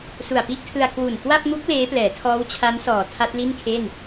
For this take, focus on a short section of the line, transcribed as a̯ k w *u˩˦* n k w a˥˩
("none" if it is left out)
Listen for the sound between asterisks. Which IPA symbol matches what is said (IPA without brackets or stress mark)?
u˨˩